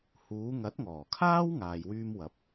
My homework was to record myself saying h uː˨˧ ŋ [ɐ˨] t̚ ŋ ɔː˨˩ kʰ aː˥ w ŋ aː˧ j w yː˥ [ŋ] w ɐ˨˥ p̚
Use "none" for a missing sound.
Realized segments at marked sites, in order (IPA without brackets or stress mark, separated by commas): ɐ˨˥, m